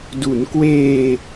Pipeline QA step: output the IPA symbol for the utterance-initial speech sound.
d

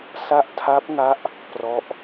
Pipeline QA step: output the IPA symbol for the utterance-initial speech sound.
s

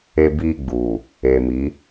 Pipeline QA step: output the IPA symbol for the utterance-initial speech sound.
e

